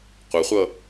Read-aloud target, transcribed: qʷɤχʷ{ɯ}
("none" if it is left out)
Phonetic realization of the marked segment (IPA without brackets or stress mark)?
ɤ